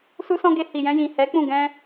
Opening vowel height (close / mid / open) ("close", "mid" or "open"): close